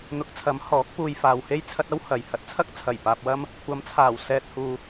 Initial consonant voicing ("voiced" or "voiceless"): voiced